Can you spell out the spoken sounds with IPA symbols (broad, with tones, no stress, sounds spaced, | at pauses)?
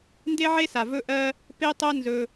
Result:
n d e˦ ʕ e˦ s a˨ v ɵ˦ ʔ ɜ˦ | p e˦ tˤ ɜ˦ n z ɵ˦